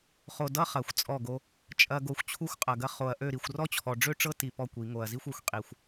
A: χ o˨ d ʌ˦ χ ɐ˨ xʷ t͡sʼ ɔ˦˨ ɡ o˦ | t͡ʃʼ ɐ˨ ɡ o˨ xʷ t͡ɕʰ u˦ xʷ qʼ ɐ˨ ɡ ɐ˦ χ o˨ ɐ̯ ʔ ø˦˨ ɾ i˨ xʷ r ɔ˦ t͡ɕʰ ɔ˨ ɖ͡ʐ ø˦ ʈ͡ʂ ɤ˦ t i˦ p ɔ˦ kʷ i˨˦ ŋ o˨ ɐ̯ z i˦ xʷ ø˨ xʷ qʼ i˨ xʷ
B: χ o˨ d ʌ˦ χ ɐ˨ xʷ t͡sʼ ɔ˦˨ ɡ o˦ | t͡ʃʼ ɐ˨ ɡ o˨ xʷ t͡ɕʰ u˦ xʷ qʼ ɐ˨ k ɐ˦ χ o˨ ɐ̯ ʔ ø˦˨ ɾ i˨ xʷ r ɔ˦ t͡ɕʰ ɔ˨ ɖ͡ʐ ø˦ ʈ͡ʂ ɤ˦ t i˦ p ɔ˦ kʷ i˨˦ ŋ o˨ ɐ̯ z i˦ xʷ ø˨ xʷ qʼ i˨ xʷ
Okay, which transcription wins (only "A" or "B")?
A